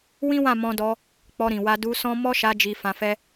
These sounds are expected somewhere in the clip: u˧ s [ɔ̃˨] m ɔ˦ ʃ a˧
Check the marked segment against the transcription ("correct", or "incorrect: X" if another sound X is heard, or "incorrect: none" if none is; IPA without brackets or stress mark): incorrect: ɔ̃˦